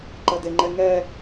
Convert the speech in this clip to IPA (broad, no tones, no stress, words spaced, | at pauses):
ǃɐdeŋ͡ǃɛŋɛ